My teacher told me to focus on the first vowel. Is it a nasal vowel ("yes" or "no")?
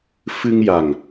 no